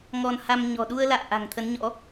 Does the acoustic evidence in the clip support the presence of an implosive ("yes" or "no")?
yes